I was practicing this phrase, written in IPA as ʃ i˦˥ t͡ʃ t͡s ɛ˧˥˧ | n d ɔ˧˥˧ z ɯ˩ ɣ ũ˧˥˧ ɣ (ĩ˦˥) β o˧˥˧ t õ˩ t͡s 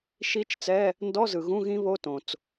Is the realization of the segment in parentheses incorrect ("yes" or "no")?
no